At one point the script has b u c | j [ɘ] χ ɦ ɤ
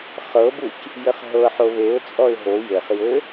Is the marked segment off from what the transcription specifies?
no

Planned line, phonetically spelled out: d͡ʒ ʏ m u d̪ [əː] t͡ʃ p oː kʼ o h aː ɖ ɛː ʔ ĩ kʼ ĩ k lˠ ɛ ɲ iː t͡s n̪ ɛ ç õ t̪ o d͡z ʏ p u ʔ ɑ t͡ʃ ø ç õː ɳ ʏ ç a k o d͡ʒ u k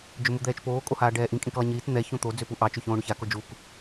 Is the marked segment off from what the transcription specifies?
yes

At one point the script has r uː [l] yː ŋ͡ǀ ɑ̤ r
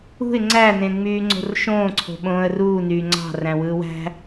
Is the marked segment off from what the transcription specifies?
yes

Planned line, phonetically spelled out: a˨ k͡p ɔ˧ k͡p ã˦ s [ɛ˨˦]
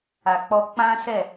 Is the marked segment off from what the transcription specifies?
yes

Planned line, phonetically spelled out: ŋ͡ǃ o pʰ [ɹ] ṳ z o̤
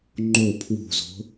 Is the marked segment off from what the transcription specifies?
yes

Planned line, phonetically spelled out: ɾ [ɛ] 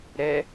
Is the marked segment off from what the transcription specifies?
no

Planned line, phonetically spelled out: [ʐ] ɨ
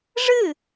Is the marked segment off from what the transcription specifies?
no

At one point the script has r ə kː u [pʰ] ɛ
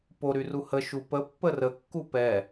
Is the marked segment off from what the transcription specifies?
yes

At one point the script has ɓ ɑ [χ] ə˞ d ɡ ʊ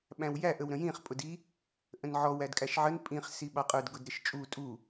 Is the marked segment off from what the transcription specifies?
yes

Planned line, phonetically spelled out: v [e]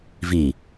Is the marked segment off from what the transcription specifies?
yes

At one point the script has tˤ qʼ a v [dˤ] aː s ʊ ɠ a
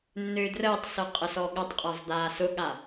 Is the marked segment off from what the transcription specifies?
yes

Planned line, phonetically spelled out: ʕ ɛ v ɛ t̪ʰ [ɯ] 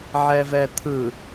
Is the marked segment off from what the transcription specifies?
no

